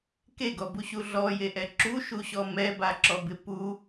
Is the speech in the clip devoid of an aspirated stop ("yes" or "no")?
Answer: yes